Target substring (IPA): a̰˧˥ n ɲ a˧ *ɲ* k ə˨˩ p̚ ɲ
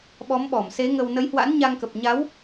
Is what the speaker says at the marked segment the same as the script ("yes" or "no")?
no